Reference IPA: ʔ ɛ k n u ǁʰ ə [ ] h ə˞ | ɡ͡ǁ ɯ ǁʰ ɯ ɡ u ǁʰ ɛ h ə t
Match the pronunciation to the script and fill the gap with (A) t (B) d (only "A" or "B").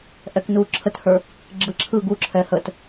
A